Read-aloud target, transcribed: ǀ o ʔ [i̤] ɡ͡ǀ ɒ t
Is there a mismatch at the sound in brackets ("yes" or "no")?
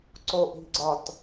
no